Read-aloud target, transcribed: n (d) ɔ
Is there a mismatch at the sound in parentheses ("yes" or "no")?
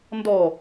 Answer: no